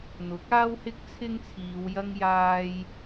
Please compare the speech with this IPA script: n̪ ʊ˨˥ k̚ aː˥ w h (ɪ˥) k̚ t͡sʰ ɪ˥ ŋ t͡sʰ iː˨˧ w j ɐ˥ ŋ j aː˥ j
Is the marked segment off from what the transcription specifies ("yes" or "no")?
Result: no